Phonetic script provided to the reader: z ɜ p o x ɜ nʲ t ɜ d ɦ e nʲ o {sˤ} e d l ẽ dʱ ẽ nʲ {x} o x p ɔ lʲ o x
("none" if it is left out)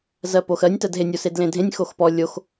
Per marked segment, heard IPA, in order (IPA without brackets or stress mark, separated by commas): s, x